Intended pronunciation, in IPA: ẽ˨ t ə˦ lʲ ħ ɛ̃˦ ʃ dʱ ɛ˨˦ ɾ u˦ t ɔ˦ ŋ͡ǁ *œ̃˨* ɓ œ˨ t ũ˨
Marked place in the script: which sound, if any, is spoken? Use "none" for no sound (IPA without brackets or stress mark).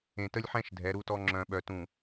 œ̃˨